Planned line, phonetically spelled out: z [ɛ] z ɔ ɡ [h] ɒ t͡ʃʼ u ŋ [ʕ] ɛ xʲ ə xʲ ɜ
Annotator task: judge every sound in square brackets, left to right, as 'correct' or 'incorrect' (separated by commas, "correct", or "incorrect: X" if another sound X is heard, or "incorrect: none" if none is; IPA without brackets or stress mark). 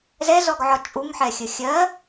correct, incorrect: ʕ, incorrect: ħ